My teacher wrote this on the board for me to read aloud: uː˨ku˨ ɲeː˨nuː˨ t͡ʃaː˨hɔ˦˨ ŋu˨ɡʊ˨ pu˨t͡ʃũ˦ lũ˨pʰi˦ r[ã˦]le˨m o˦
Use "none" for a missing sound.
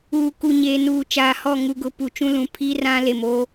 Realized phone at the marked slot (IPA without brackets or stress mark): ã˦